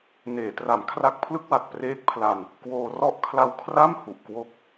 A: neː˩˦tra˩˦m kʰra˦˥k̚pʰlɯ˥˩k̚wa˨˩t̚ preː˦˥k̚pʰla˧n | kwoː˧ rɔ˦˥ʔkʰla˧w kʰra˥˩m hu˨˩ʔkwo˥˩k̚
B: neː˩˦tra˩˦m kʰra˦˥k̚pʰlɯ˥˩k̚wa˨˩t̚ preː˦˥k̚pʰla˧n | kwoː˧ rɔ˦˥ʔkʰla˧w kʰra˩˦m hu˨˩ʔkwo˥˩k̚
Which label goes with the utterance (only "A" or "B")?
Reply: A